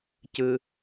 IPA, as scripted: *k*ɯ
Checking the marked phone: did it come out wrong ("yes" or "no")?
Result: yes